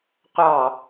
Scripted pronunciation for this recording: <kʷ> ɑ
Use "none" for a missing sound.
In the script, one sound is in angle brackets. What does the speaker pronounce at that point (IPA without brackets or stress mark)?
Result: qʷ